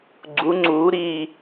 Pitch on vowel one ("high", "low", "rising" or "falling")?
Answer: rising